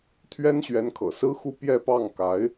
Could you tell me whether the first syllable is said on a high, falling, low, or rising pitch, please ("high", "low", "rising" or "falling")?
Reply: high